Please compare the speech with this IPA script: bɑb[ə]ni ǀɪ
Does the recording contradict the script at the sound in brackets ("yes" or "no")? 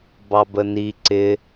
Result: no